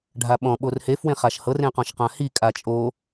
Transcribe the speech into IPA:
ɖʱ a ɓ ɔ̃ ɓ o r h e f w ẽ χ a ʃ h ɤ r ẽ q ɔ̃ ʃ q ã h i kʼ a t͡ʃʼ o

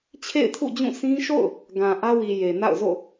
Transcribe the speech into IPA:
t͡ɕʰ ḛ˦˨ ɪ̯ tʰ ṵ˦˨ d͡ʑ ũ˦˨ sʰ ĩ˦ ʃ o̰˦˨ ʊ̯ | ɡ ã˨ ʔ ä˦ w i˨ j e˨ n a̰˦˨ ʊ̯ z o̰˦˨

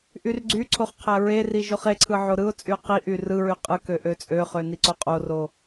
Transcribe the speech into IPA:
ʔ y r ɡ͡ǀ y ǀʰ o χ qʰ æ ɹ e r i ʒ o χ e ǀʰ ɯ ʕ o ɾ ɯ ʊ̯ t͡sʼ y ʊ̯ q i ʔ y r ɯ ɹ y qʼ ɯ k ø ʔ ø t͡sʼ ø χ ø n i ǀ o qʼ o r o

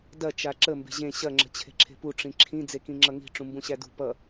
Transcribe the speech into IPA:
d ɐ t͡ʃ a ǁ ə m b e̤ ʑ ẽ ɕ ɐ ŋ͡ǁ ə̤ t͡ɕʰ e̤ ǁʰ e̤ p u ʈ͡ʂ ĩ ǁʰ ĩ d͡z e k ĩ ŋ͡ǁ ʌ ŋ i̤ ʈ͡ʂ ũ m b ũ ɕ æ d ṳ p ʌ

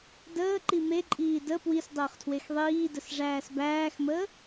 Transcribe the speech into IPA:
d əː ǃ i m e ǃʼ iː d ə p w i s dˤ əː χ tʰ w e x ðˤ iː d ə s ʐ æː s b æː x m əː

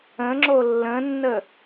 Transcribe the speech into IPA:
ə̃ ŋ͡ǁ o lː ə̃ nː ə

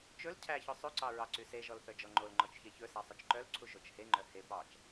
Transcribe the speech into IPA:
t͡ʃ ɵ l cʰ æ ç ɵ sˤ ʉ ǀ ɑ ɹ ɑ ǀ y s e ʒ ɔ l θ œ d͡ʒ ɔ ŋ͡ǃ o l ŋ͡ǃ ɔ t͡ʃ ç e ç ɵ s æ sˤ ɵ t͡ʃ ǃ œ l ǀʰ u ʒ o t͡ʃ h e ŋ͡ǃ œ h e p ɑ t͡ʃ

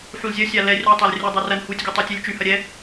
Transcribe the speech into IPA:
ħ u l zʲ ɐ sʲ a l ɛ rʲ ɔ tˤ a l rʲ ə dˤ o r ɐ n h u tʲ ɡʲ u tˤ ɛ tʲ u lʲ t͡ʃ y h ɐ ɾʲ ɛ

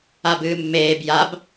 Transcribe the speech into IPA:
a b ɨː mː eː b j a b

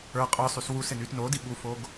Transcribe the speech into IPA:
ə˞ qʼ ə˞ sˤ y s w u s ɪ n y t n o d i ɠ u f o ɡ

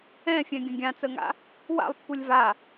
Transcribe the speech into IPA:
ɛ̃ fʲ ɛ̃ ɡʲ ə̃ ɡʲ ã t͡s ə ŋ a̰ | w a̰ lˠ pː u lʲ v a

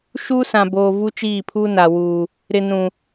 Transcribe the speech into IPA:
ʃ uː˦ s ã˨ b oː˨ v u˦ t͡ʃ iː˦˨ pʰ uː˦ n a˨ w uː˨ | ɾ ɪ˨ n ũ˨

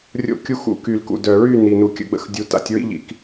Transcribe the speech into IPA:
rʲ o̰˧ kʲ u˧ x ṵ˧ k y˨ l k ṵ˨ d œ˨ ɹ y˦˨ n i˨ n u˨ kʲ ə̰˧ ɡ͡b ə̰˧ x dʲ u˨˦ t a̰˧ tʲ ɹ ḭ˦ ʎ ḭ˧ k

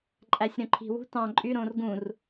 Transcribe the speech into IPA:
ǃʼ æ sʲ ɾ õ ǃʰ i̤ w ṳ t ɑ̃ ǃʼ y ɾ õː r ɡ ũ r

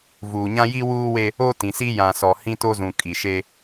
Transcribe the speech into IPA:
v uː˨ ɲ ã˦ j i˦ w uː˦ w e˦ | o˦ t ĩ˨ s i˦ j ã˨ s ɔ˨ h ĩ˦ t o˦ z ũ˨ kʼ i˨ ʃ e˦

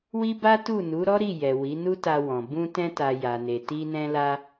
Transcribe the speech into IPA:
w i˦ b a˦ t u˦˨ n u˨˦ ɾ ɔ˦ ɾ i˦˨ j ɛ˨ w i˨˦ n u˦ t a˧ w ɔ̃˨ b ũ˧ t ɛ̃˧ t a˨ j a˨ n e˨ t i˧ n ɛ̃˧ l a˧

